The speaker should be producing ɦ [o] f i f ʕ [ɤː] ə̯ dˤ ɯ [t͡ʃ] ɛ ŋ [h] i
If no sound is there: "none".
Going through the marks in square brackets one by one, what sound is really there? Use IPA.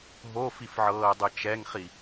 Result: o, ɤː, t͡ʃ, χ

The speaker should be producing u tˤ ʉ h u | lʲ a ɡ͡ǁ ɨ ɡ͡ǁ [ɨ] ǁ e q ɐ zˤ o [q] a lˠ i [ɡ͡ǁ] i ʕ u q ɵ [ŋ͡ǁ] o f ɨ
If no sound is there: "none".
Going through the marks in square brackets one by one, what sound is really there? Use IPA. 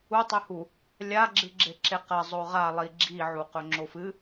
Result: e, ʁ, ɡ͡ǁ, ŋ͡ǁ

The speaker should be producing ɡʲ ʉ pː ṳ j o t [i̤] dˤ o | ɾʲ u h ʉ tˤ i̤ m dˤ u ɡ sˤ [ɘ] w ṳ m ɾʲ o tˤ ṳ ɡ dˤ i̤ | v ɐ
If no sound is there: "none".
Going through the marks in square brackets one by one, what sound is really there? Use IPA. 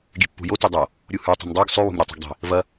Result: i, ʉ

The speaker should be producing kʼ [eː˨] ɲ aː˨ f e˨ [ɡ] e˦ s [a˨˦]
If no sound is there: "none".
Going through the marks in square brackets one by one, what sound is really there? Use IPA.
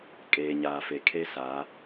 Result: eː˨, kʰ, a˨˦

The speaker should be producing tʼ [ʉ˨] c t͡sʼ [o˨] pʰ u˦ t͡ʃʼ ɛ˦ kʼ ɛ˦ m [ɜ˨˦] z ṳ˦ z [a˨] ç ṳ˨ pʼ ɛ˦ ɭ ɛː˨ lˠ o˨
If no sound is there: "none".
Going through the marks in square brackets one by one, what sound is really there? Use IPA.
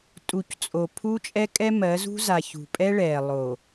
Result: u˨, o˨, ɜ˨˦, a˨

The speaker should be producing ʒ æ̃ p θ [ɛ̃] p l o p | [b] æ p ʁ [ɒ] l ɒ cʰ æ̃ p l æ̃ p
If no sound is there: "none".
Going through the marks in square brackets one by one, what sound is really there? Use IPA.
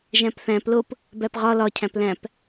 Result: æ̃, b, ɒ

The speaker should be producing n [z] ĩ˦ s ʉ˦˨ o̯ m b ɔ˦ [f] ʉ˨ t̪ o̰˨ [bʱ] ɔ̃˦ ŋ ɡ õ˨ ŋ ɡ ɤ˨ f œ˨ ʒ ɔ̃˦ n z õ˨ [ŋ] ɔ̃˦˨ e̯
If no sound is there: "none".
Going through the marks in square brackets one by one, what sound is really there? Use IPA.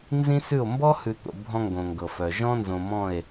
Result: z, h, bʱ, m

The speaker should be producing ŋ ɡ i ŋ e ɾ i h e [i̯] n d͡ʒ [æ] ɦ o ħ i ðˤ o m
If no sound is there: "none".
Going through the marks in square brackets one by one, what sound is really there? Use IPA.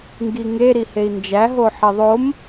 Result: i̯, æ

